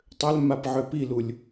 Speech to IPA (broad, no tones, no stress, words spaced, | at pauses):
tˤøl mapʕøpilulʲ